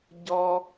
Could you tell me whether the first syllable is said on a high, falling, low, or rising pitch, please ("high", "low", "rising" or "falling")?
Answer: high